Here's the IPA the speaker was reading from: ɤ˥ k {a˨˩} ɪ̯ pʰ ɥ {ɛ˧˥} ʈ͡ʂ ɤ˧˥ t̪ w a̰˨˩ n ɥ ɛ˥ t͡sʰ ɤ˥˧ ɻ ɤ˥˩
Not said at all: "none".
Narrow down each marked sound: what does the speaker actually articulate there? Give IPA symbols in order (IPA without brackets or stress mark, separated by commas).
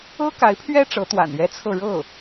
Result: a˧˥, ɛ˥